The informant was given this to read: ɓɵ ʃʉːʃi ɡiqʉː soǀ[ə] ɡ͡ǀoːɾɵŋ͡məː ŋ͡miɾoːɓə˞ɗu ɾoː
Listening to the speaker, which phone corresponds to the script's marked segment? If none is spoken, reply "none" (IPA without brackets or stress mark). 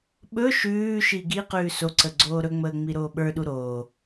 ə